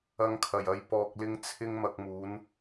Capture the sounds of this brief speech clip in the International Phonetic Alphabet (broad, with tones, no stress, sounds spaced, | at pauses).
ɐ˧ ŋ kʰ ɐ˨˩ j ɐ˨˧ j p ɔː˨ k̚ l ɪ˧ ŋ t͡sʰ ɪ˧ ŋ m ɐ˨ k̚ m uː˨˧ n